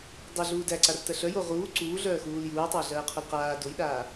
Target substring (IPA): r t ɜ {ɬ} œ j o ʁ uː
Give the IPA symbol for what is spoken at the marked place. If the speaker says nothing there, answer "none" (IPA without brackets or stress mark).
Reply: ɬ